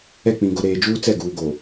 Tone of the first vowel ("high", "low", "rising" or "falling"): falling